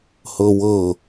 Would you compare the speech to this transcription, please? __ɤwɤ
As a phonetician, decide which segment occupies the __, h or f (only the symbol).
h